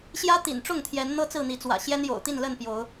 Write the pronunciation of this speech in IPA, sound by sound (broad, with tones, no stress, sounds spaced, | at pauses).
ɕ j ä˦ t̪ ḭ˨˩ n ʈ͡ʂ ʊ˥˨ ŋ t̪ʰ j ɛ˨˦ n n̪ ɤ˦ t͡s ɹ̩˥˨ n̪ i˨˦ t͡s w ä̰˨˩ ɕ j ɛ˦ n j o̰˨˩ ʊ̯ t̪ i˥˨ n l ə˥˨ n p j o˨˦ ʊ̯